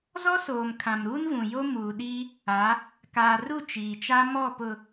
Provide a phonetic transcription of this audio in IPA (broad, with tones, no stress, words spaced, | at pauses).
zɔ˦soː˨m kʰã˨mɾuː˦nvũ˨jo˦ muː˨ɗiː˦ | a˨˦ | kaː˨ru˦˨ t͡ʃiː˨t͡ʃa˦ mɔ˦˨pʊ˨